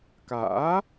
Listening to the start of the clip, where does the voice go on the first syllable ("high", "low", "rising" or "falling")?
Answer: rising